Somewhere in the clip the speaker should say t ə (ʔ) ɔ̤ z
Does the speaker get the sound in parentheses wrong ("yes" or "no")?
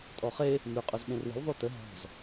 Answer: yes